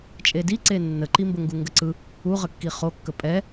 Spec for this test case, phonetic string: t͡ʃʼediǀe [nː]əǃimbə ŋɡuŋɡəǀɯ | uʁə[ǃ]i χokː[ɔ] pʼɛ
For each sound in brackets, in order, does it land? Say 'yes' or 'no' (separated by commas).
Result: yes, no, no